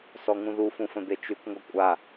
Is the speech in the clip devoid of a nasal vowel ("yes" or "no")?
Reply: no